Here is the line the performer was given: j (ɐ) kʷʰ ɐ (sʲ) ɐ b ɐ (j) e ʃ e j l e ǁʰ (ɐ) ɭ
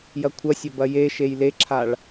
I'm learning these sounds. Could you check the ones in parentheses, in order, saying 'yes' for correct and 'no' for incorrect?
yes, yes, yes, no

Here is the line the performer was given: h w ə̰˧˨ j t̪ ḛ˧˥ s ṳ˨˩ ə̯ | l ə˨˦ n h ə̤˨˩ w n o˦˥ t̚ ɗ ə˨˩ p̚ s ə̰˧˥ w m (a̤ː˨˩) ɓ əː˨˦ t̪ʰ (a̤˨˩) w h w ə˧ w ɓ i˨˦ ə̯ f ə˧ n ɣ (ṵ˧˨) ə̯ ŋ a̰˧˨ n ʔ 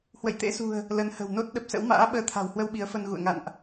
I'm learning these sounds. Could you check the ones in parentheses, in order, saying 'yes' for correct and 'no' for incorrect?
no, yes, yes

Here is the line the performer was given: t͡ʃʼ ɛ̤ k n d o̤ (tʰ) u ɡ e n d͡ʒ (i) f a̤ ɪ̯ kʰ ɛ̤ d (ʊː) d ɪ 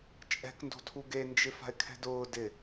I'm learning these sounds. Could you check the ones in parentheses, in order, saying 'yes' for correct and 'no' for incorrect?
yes, no, yes

